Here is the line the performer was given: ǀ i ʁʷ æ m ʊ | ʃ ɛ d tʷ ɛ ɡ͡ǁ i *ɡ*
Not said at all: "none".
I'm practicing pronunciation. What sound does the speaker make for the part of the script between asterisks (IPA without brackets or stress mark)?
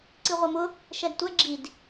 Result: d